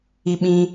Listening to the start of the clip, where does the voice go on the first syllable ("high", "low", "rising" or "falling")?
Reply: high